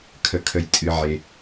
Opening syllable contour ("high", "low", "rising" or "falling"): low